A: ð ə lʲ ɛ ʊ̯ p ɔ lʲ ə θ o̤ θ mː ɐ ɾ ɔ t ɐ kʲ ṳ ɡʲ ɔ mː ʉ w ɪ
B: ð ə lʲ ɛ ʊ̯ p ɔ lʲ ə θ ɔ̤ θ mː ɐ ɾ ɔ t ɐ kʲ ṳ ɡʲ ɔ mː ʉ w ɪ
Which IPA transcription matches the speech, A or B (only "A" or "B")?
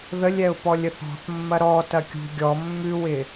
B